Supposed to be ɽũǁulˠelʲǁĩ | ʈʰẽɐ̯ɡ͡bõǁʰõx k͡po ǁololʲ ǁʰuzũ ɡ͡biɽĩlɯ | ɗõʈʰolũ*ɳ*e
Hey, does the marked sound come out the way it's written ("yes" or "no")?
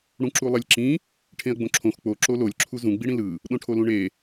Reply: yes